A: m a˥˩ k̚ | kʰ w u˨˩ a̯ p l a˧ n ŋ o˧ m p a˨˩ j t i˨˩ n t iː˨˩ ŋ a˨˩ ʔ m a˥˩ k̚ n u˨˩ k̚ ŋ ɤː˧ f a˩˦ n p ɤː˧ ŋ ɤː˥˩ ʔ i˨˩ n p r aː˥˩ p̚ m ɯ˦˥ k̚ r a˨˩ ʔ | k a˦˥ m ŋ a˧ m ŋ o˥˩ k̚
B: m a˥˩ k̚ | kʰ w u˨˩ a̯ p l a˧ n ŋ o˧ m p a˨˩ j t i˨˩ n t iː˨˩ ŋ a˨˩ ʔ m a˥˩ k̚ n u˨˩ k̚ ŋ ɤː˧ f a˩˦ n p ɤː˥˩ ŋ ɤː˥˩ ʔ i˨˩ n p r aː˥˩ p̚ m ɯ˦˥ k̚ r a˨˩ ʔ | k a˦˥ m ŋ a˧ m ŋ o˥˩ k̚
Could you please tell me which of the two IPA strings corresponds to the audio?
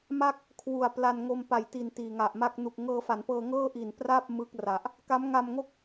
A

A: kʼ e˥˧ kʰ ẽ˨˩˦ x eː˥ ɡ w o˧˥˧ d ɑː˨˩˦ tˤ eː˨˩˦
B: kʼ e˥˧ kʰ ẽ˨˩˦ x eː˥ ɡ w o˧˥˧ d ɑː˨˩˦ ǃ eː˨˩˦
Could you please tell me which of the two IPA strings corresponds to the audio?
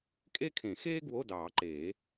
B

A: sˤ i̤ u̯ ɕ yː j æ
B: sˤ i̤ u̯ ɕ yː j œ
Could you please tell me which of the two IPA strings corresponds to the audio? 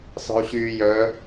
B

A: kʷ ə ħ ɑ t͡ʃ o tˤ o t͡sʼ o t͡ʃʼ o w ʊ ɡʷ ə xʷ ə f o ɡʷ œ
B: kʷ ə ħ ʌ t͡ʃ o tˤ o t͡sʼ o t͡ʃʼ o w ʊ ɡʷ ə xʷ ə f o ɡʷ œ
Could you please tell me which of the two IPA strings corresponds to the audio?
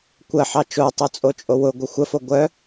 A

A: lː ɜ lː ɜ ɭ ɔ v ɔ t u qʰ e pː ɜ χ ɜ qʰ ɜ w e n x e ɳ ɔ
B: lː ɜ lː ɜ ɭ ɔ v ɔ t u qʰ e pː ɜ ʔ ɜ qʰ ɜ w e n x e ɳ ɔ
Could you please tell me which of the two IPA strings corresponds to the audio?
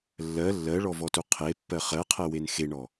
A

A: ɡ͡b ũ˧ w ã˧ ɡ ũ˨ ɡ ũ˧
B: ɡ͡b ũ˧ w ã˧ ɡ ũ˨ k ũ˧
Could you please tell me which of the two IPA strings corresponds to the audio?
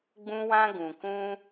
B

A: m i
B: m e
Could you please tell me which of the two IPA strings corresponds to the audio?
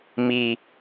A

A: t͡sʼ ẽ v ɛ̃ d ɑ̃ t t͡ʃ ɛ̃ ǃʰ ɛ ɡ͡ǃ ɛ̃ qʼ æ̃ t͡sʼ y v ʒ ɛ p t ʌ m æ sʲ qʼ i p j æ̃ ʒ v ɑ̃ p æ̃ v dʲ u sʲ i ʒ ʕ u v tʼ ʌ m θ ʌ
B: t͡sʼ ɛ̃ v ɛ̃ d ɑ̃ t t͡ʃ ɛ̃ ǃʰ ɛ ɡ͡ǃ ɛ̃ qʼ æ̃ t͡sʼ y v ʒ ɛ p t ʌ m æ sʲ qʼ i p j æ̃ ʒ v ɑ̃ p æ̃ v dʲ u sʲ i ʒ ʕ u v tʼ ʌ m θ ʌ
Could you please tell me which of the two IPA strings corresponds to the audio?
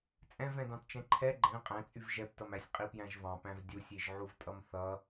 B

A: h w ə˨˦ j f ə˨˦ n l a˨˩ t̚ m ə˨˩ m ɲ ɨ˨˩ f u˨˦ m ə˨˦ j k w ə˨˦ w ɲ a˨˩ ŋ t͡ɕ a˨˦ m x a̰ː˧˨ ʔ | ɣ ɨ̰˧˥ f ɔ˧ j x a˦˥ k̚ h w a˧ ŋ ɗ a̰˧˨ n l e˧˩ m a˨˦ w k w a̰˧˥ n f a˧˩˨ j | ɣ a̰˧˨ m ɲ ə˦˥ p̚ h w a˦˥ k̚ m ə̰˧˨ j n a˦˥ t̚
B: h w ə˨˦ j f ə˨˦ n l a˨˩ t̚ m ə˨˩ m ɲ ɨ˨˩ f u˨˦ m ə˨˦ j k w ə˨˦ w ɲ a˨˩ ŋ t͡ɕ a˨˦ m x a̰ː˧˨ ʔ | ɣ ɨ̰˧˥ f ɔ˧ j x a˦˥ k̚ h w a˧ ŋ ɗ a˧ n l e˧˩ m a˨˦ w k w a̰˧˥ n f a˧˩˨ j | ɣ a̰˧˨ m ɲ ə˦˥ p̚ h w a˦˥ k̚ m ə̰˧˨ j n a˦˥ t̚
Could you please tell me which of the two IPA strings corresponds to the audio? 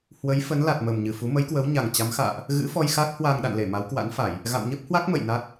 A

